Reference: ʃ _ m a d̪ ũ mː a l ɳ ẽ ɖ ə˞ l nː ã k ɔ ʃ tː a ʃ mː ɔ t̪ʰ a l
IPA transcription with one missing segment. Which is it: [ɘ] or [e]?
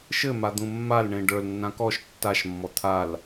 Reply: ɘ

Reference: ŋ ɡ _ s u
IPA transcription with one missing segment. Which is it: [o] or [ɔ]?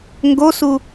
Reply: o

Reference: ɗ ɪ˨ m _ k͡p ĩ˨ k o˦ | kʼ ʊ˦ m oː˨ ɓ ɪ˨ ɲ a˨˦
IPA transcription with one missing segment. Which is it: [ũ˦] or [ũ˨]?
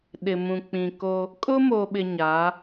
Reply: ũ˨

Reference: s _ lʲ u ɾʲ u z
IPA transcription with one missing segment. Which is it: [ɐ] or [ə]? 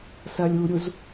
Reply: ɐ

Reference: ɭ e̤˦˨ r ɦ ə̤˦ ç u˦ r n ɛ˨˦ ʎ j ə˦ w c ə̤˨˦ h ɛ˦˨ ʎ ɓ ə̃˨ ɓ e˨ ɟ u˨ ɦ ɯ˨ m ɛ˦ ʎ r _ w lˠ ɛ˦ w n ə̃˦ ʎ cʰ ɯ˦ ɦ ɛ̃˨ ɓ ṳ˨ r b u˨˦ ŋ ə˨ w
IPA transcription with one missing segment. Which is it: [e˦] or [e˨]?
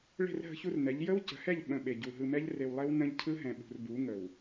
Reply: e˨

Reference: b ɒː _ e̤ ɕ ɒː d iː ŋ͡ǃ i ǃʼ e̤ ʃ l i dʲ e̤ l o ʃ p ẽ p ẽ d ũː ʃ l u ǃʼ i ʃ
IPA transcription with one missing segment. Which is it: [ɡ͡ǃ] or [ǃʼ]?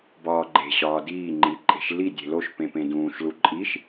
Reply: ɡ͡ǃ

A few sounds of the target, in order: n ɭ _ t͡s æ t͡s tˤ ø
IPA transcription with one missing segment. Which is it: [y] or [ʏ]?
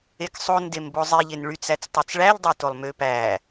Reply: y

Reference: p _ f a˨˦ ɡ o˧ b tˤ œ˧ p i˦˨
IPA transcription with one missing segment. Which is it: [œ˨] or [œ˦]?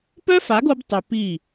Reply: œ˦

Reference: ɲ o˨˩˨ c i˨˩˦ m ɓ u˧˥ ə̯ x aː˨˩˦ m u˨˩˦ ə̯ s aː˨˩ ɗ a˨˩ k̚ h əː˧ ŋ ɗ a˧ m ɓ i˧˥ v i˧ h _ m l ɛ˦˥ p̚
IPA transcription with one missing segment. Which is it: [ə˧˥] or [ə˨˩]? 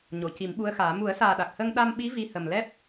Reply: ə˨˩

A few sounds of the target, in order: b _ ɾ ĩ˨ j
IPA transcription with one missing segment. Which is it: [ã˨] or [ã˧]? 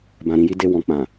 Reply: ã˨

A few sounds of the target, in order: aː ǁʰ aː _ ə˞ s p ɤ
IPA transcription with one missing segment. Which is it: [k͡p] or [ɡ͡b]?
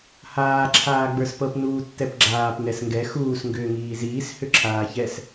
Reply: ɡ͡b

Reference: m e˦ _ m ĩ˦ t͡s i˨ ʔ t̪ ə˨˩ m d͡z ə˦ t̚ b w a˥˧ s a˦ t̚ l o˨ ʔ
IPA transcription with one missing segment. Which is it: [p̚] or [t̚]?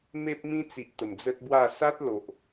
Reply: p̚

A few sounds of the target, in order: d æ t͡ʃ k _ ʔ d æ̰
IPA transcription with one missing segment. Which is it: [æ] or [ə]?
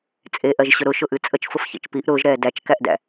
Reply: æ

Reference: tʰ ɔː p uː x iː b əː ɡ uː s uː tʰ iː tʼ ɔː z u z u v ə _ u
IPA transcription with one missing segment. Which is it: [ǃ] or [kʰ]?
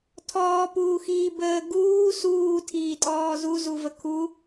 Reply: kʰ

